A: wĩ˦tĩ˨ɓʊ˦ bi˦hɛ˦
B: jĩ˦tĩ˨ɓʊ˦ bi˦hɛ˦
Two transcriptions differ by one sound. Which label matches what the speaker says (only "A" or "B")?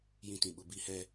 B